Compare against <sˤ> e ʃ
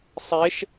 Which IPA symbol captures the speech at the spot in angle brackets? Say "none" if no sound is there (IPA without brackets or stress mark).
sˤ